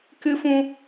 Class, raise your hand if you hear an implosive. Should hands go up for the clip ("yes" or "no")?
no